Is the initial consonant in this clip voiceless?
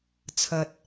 yes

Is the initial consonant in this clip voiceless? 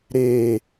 no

